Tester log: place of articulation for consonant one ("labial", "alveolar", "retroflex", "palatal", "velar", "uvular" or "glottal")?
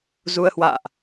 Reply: alveolar